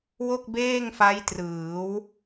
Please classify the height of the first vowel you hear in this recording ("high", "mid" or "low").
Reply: mid